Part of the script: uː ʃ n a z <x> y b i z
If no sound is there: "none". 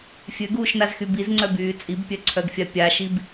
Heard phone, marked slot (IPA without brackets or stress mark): x